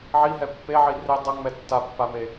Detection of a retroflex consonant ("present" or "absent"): absent